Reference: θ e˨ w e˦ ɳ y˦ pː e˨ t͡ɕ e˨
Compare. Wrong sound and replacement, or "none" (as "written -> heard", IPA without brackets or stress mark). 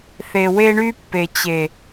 none